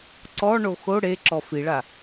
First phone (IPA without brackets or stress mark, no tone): ǀ